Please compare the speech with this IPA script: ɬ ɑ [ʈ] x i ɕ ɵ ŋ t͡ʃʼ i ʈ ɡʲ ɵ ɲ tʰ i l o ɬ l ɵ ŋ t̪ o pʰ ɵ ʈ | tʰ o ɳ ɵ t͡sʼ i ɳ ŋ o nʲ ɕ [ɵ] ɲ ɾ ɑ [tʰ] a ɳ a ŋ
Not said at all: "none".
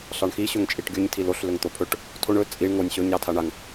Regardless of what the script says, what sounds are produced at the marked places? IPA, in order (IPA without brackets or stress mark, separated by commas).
ɳ, ɵ, tʰ